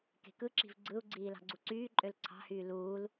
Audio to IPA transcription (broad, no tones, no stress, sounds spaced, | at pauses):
k e̤ k ɯ ǁ i̤ v ɡ͡ǀ ɯ u̯ ɡ͡ǀ iː l ɑ̤ ɡ͡ǀ u ǀ yː ǃʼ ø l ǀʰ ɑ̤ h yː l uː l